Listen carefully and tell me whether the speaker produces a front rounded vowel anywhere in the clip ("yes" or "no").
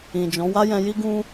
no